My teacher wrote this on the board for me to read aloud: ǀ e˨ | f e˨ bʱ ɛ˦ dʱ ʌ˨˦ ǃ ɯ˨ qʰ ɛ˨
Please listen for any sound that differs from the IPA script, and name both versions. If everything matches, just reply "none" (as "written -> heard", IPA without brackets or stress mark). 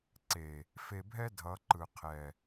none